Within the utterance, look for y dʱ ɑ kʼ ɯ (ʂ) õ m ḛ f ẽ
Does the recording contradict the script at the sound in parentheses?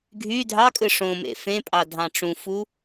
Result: no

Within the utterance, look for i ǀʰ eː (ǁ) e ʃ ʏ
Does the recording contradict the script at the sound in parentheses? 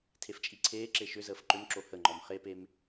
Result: no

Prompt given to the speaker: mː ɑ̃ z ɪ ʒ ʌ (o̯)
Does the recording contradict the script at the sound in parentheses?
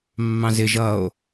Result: no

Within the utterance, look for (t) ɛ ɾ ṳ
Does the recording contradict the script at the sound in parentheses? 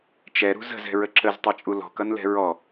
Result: yes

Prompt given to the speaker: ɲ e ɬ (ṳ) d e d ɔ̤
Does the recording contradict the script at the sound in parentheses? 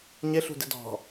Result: no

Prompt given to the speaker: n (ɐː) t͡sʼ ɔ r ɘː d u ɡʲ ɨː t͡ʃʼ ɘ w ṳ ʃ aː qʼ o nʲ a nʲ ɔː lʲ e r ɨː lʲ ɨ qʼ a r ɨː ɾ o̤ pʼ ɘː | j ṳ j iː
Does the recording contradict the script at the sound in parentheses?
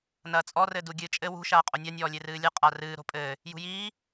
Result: no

